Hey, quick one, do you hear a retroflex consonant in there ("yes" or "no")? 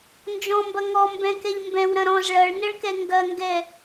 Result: yes